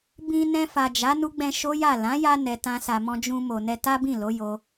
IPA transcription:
b ĩ˧ n ɛ̃˧ f a˨ d͡ʒ a˨˦ n u˦ ɡ͡b ɛ̃˧ ʃ o˦ j a˦˨ l ã˨˦ j a˧ n ɛ˨ t ã˧ s a˨ m ɔ̃˧ d͡ʒ ũ˧ m o˨ n ɛ˧ t a˦ b ĩ˦˨ l o˨˦ j o˧

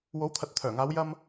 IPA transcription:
w o˨˥ w t̪ʰ ɐ˨ t̚ t̪ʰ œː˨˩ ŋ aː˨˧ w j ɐ˥ m

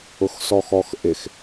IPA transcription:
ʊ x s ɔ x ɔ x ʔ ɪ x

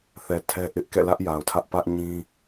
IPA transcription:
θ ɛ˨ tʰ ɛ˦ ʔ ɪ˦ ʔ k ɛ̰˦˨ l ä˦ ʔ j a˨ ʊ̯ tʰ ä˦ ʔ p ä˦ ʔ ɲ ĩ˦

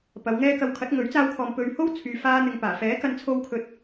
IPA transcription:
p ɐ˨˧ w ŋ ɛː˥ k ɐ˧ w kʰ ɐ˨˥ t̚ ŋ ɵ˨˥ ɥ t͡s aː˧ w kʰ ɔː˨ m p ɵ˨ ɥ h o˥ w t͡sʰ yː˧ f aː˥ n̪ ɪ˧ ŋ p aː˨˩ f ɛː˨˥ k ɐ˧ n t͡sʰ o˧ w kʰ ɵ˨˥ t̚

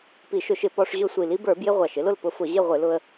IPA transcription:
p i˧˩˧ ʃ ʊ˧˩˧ ʃ ɪ˧˩˧ p ɔ˧ ʂ ʑ ʊ˥˨ sʷ i˧˩˧ l i˧˥ b ə˞˧˩˧ b j ɪ˧ ʁʷ ɑ˨˩ ʃ ɪ˧˥ l ʊ˥˨ l p ʊ˧˥ f ʊ˧˩˧ ʑ ɪ˥˨ ʁʷ ɪ˧˩˧ l ʊ˧ ə̯

